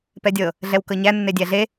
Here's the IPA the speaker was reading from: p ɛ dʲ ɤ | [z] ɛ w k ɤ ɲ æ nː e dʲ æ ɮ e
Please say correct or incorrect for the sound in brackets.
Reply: incorrect